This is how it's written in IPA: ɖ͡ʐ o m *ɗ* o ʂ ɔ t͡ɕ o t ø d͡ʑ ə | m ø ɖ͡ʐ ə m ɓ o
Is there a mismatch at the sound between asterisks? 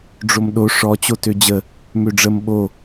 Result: no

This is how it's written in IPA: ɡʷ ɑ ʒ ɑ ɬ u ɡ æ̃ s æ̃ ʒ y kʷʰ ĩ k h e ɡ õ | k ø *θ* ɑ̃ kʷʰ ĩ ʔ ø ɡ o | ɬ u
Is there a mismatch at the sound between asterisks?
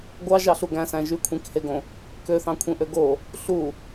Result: no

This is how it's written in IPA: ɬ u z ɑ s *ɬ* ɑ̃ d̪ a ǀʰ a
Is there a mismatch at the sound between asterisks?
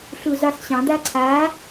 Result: yes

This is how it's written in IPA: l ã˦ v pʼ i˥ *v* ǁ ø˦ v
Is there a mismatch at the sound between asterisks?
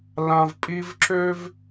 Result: no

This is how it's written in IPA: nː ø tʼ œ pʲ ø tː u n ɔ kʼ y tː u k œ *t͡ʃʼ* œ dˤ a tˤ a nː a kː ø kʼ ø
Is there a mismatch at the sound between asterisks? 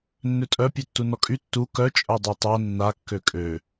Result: no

